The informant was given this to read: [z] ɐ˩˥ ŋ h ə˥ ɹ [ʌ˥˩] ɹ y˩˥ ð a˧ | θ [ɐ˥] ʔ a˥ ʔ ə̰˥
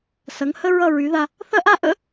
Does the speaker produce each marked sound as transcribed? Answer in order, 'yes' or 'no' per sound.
no, yes, yes

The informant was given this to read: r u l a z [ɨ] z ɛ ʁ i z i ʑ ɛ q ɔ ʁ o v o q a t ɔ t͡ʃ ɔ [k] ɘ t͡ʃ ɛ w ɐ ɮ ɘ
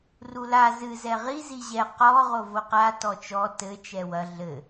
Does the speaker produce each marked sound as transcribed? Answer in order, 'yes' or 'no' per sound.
yes, no

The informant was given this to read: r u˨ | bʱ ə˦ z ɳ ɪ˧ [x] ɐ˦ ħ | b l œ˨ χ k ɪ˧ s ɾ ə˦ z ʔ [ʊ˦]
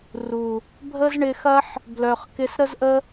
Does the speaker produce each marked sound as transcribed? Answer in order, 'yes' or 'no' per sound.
yes, no

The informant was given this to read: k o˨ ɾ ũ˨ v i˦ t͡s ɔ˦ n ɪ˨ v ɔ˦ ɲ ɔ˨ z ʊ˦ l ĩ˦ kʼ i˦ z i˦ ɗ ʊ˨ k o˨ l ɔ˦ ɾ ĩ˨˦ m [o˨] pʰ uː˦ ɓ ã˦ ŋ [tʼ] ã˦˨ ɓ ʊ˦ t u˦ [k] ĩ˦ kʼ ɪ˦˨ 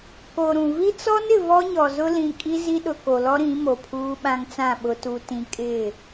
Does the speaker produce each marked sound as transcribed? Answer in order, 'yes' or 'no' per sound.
yes, no, no

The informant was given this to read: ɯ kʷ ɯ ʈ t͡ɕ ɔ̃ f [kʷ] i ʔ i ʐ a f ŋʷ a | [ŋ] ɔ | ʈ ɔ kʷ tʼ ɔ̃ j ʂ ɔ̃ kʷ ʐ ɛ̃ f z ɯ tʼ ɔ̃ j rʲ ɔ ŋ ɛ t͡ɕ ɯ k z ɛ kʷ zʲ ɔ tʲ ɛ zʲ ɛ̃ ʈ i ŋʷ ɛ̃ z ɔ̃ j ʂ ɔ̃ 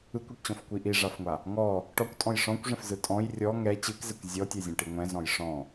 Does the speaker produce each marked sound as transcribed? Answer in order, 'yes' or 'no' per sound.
yes, yes

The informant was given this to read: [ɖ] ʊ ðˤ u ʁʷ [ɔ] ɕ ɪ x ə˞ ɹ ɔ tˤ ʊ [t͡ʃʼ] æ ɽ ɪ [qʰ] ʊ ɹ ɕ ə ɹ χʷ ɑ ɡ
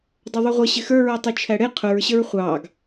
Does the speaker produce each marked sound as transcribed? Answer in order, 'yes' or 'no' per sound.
no, no, no, yes

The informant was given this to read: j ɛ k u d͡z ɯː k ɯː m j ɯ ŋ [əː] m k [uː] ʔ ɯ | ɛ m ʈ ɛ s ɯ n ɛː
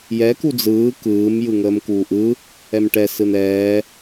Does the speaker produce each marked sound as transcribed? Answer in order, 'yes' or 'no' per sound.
yes, yes

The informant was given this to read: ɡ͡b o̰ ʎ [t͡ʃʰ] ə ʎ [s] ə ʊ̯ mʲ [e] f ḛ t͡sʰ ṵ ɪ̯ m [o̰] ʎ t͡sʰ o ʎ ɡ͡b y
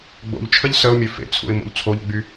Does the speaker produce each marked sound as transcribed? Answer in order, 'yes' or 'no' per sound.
yes, yes, no, yes

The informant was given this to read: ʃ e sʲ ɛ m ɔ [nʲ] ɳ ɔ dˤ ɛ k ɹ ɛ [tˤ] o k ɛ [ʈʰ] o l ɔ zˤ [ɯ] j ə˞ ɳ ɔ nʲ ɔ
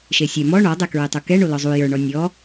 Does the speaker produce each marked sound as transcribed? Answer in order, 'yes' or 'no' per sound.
no, yes, no, no

